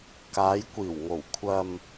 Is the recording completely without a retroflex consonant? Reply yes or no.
yes